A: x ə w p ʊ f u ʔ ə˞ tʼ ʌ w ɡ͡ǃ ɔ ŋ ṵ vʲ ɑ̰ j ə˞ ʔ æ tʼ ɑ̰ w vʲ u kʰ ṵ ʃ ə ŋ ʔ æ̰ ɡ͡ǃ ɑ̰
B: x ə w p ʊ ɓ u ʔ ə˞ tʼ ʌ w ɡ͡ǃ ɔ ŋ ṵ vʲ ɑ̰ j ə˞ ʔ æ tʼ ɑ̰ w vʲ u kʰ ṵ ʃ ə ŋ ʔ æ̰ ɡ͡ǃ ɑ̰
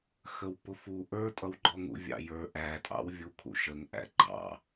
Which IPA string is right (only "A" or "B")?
A